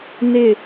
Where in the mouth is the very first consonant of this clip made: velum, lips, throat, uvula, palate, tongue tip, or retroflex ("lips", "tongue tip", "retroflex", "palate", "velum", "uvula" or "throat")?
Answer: tongue tip